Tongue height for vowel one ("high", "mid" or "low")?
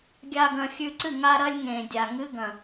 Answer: low